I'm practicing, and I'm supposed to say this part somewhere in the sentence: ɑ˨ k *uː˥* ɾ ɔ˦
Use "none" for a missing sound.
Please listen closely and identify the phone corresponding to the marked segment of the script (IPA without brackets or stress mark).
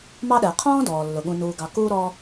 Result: uː˥